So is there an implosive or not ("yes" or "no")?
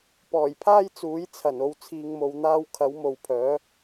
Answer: no